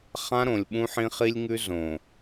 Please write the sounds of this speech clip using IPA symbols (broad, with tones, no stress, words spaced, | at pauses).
χã˦ ɾõ˨lʲɓũ˦ħĩ˦ χi˦lʲŋʉ˦ zõ˨